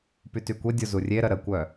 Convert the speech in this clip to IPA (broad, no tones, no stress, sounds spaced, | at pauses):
p y t y kʷ e dʲ o z u rʲ e ɾ ə ɾ ə kʷ œ